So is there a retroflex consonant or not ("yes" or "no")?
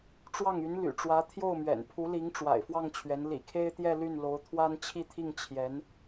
yes